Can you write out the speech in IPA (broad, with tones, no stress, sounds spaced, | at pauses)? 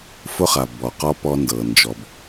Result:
f ʊ˦ χ a˨ b ɔ˨ q ɔ˦ p ɔ˦ n d ɤ˨ n d͡ʒ ɔ˨ b